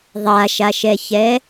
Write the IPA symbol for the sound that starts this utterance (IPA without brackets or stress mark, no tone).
ðˤ